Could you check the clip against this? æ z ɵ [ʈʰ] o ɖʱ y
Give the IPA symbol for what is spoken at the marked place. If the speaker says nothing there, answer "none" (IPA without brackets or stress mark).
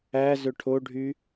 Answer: ʈʰ